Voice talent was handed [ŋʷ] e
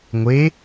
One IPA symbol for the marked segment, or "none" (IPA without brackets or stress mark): ŋʷ